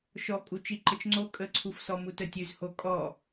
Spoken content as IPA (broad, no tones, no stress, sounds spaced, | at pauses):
ʃ ɔ kʼ u t͡ʃ i ǃ ə t͡ʃ ŋ͡ǀ o kʼ ə ǀʰ u f s ɔ m u t ə tʲ ʉ z h o kʼ ɔ